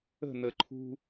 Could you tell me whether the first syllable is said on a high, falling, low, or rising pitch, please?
falling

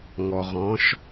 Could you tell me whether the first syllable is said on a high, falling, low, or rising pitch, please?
low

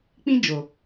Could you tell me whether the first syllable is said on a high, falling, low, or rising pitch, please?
high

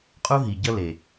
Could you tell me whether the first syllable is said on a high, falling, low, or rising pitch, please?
high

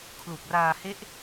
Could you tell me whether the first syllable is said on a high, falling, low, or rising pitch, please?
low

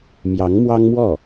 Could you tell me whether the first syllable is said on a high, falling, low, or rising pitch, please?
rising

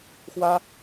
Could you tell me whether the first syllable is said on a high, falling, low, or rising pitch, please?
high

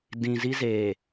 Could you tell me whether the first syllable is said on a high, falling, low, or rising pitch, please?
low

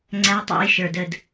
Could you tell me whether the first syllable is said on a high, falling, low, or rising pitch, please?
high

